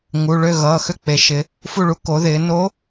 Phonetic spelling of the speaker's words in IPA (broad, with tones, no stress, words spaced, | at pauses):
ŋu˩˧˩ ɭø˥˨ ɣʌː˩˧˩xø˥˨k͡pe˩˧ʃɪ˩˧ | fu˥˨ɭu˧˥ ko˩˧ðɪː˩˧no˧˥